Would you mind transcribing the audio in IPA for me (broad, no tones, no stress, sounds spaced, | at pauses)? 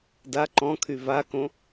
d a ǃ ɔ̃ kʰ y v a k õ